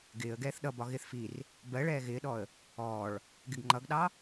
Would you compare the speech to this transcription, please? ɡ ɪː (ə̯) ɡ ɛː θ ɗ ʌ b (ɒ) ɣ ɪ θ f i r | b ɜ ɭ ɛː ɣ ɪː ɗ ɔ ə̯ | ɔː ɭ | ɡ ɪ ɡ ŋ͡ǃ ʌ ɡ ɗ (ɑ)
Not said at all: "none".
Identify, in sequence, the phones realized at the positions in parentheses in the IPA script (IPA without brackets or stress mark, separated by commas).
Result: ə̯, ɒ, ɑ